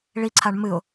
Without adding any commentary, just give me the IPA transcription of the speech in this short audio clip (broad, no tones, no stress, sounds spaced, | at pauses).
ɭ i ǀʰ a ɳ m ɨ ʊ̯